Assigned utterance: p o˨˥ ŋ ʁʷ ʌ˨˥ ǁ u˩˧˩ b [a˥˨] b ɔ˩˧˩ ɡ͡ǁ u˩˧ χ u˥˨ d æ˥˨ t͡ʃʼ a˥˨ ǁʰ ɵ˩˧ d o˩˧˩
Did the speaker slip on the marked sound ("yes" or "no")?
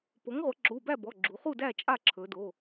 yes